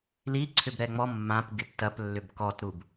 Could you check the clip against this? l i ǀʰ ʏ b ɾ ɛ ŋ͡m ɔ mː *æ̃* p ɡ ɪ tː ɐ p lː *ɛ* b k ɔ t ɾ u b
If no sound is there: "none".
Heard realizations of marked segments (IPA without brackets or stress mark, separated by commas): ã, ʏ